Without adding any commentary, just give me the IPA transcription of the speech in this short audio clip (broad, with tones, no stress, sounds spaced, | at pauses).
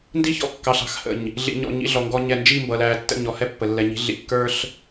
n d i˦ ç ɔ̰˦ kː ɑ˨ ɬ ɑ̤˨ x h ə̰˨ ɲ | ɮ ḭ˨ ɲ ɔ̰˨ ɲ ḭ˨˦ ɮ ɔ˨ ŋ ɡ ɔ˦ ɲ ɛ˦˨ n d͡ʒ i˦˨ m b ʌ˨ l æː˨ tː ə̰˦˨ ɲ ɔ˦ h ɛ˦ pː ə˨ lː ɛ˨ ɲ i̤˨˦ ɮ ḭ˨ kː ə˞˦ ɬ